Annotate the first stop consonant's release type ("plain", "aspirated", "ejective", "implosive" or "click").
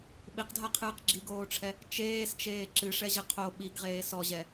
implosive